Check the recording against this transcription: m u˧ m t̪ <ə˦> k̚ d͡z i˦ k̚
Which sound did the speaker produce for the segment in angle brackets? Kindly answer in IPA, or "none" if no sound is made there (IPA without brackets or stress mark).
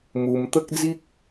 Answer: ə˦